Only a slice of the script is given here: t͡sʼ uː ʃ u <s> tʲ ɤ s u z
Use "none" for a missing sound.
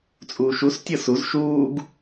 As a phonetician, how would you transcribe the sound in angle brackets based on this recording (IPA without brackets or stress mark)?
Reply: s